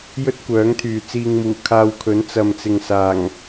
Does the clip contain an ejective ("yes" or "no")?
no